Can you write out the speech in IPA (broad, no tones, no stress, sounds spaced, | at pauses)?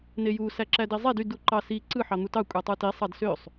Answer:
n e j u s æ ǁ æ d i zˤ e d y d u ǃ ɑ s i ǀ ɯ ħ ɑ n̪ u t ɑ kʷʼ e tˤ ɯ t i sˤ ɑ d s ø sˤ